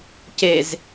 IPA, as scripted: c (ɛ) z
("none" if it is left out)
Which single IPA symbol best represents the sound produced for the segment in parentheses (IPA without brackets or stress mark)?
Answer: e